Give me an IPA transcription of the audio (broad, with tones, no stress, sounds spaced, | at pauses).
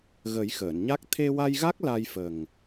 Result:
ɣ ə˨˩˦ j x əː˨˩˨ n ɲ a˦˥ k̚ t̪ʰ e˧ w a˧ j ɣ a˦˥ k̚ l a˧ j f ə˨˩ ŋ